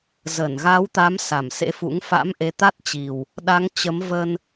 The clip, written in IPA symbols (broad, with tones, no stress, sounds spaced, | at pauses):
z ə˧˩ n ɣ a˨˦ w t̪ a˨˦ m s a˧˩ m s ḛ˧˥ f ṵ˧˥ ŋ f a̰˧˥ m ʔ e˨˦ t̪ a˦˥ t̚ t͡ɕ i˨˩ w | ɗ a˨˦ ŋ t͡ɕ ə˨˦ m v ə˧ n